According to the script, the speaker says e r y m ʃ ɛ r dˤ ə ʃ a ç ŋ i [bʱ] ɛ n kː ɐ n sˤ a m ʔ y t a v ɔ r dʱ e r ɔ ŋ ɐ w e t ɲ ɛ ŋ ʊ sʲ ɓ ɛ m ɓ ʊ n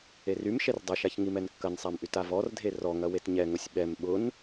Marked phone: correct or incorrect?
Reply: incorrect